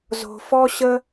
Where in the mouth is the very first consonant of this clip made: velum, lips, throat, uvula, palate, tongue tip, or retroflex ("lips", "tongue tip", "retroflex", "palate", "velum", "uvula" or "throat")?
tongue tip